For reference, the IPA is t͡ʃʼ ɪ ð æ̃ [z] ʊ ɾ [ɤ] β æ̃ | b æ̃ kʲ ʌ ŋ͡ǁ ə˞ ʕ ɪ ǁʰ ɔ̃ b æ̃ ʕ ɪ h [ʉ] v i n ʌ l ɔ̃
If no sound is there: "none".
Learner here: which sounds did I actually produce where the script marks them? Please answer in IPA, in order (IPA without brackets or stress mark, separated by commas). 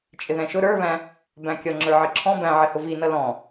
ʃ, ə˞, ʊ